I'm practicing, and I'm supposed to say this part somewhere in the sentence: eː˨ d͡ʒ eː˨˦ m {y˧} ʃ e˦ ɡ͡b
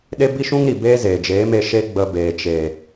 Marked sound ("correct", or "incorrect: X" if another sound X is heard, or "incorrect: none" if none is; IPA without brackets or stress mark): incorrect: e˧